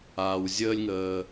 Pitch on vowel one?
low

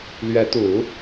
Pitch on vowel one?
rising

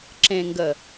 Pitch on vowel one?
low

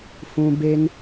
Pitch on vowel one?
high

